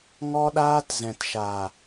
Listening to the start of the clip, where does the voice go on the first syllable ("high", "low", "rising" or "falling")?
high